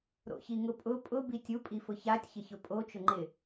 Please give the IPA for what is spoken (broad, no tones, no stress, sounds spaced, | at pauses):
ɾ o̰ ç i ŋ ʊ pʼ ʊ pʼ ʊ b i tʲ u pʼ i f ʊ ç a tʲ ç ɪ ç ʊ pʼ o t͡ʃ ʊ ŋ͡ǃ ɪ